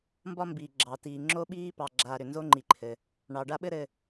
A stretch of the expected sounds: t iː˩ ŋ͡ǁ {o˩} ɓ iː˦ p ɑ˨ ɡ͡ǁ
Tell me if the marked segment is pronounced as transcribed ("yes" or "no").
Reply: no